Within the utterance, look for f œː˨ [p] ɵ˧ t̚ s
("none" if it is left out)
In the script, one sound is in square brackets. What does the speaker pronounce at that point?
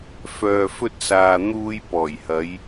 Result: f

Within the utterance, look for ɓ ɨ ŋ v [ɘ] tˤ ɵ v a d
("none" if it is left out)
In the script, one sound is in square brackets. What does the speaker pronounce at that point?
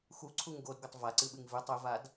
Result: ʉ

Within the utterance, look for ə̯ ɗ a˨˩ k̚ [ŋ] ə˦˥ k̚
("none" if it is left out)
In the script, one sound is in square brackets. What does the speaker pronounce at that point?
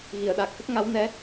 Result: x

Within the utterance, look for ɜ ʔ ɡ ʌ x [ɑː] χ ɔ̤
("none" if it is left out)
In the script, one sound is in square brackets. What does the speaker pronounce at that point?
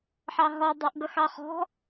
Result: ɑ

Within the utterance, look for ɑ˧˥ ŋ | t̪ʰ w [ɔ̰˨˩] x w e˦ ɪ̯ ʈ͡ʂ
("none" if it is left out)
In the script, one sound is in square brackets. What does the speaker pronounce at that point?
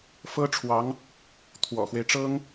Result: ɔ̰˨˩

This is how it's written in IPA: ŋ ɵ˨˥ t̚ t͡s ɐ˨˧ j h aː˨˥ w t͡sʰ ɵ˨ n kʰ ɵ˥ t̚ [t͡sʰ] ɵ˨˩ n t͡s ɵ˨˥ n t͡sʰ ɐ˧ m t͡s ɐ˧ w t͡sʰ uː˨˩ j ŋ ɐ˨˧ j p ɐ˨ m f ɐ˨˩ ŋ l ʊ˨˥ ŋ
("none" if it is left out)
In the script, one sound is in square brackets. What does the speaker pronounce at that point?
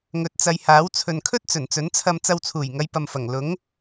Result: t͡s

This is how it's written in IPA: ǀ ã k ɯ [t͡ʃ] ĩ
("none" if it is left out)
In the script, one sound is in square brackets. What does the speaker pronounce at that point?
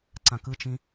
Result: t͡ʃ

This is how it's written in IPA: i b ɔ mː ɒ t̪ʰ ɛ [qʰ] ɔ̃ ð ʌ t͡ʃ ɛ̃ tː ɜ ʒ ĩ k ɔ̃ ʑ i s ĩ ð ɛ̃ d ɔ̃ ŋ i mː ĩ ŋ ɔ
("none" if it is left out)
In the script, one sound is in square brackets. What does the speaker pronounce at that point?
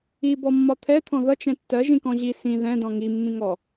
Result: t̪ʰ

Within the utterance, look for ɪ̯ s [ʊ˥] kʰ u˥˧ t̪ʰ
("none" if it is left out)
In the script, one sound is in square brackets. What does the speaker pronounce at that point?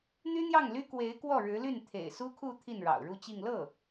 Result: u˥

